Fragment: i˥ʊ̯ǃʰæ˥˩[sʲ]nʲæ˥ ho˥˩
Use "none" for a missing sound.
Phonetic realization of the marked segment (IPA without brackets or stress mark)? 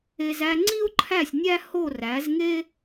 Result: sʲ